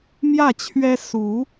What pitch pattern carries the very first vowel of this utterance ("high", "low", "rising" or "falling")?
falling